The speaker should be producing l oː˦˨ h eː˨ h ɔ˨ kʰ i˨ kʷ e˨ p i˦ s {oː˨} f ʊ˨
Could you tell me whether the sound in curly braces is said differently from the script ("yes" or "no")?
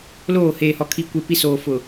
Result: no